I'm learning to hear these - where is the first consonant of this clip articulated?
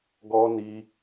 velum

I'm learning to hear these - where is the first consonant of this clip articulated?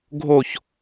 velum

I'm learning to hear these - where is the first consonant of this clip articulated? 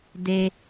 tongue tip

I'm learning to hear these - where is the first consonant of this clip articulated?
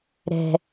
tongue tip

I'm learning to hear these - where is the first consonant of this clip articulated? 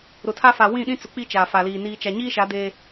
tongue tip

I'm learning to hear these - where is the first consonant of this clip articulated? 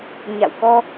palate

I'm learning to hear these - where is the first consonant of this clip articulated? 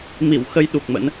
lips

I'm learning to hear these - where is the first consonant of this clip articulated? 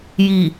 palate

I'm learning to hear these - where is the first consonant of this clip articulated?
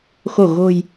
velum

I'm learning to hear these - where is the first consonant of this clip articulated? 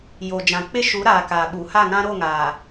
palate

